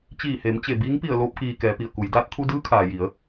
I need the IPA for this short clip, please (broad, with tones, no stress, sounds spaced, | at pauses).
t͡ɕ iː˧˩ h e˩˧ m t͡ɕ e˧˩ b iː˧˥ ŋ p i˧˩ ə̯ l oː˧ p̚ k iː˩ k ɛː˩˧ p i˩ ə̯ k u˩˧ j d aː˧ t̚ t̪ʰ u˧ d ɯː˧˥ kʰ aː˩ j i˩˧ ə̯